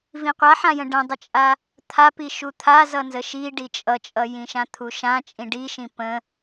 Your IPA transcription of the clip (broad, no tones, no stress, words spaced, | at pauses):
vĩqʷaħãjə̃ ɖə̃dˤət͡ʃʼa | t̪ʰapi ʃut̪ʰa zʌnzəʃi ɖit͡ʃʼʌt͡ʃʼʌ jĩʃãt̪ʰuʃã t͡ʃʼĩɖiʃĩ pə̃